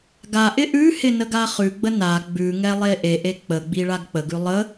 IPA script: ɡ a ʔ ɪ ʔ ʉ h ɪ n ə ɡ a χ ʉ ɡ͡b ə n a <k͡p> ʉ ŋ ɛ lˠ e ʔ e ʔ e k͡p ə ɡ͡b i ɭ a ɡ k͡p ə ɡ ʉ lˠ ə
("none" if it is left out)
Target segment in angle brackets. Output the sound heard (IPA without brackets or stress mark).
ɡ͡b